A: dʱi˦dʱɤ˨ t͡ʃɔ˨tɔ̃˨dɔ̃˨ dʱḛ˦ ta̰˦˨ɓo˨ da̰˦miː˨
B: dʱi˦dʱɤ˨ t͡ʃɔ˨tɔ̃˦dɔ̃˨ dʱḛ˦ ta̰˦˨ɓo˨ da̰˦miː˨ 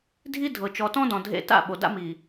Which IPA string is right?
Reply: B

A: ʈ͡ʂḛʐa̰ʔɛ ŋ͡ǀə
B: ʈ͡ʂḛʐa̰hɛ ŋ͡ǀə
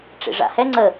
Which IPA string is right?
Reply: B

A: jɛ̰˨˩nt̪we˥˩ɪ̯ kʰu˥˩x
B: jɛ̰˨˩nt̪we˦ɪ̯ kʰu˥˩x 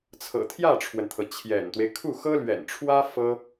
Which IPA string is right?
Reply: B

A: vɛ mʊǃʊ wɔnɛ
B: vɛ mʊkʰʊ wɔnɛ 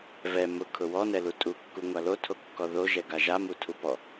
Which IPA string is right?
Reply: B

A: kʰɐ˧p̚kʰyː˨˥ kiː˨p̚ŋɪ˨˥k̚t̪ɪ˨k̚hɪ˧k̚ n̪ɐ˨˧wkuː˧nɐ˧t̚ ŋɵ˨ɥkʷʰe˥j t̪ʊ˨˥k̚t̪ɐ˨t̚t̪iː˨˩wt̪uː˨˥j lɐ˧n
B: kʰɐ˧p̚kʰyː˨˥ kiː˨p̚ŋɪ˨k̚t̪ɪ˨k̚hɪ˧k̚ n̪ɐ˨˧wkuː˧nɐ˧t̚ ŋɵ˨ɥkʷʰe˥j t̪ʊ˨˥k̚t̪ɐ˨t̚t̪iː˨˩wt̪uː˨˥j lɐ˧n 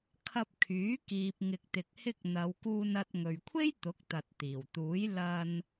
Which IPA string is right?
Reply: B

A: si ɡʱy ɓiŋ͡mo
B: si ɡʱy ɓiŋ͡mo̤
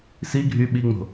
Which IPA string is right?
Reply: B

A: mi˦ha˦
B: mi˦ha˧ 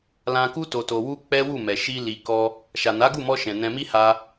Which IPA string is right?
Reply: B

